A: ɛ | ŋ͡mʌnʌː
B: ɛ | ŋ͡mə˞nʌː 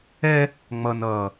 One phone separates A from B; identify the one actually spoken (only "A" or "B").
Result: A